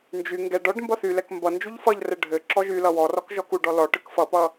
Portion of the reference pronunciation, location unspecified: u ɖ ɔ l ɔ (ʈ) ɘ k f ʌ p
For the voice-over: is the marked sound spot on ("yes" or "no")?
yes